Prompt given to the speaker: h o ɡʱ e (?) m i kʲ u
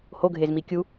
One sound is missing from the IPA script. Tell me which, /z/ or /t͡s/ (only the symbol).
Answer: z